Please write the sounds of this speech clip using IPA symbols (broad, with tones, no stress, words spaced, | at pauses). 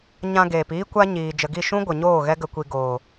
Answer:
ɲã˧ɡeː˨piː˦ kʷa˦ɲiː˨ d͡ʒə˨ɡi˦˨ ʃũ˦ ɡʷə˨ɲoː˦˨ ɣɛ˦ ɡə˧kʷi˧ ɡoː˨